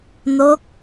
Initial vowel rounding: rounded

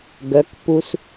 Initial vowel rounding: rounded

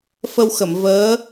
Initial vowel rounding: unrounded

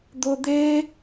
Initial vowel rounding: rounded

